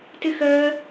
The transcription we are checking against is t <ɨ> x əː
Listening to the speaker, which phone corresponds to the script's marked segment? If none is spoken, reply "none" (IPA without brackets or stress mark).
ɨ